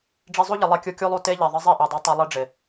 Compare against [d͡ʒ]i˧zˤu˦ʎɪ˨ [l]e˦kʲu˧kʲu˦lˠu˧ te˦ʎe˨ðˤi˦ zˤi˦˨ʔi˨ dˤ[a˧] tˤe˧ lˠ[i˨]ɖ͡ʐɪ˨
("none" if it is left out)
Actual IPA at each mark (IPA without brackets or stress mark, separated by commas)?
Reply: ɖ͡ʐ, lˠ, a˧, i˦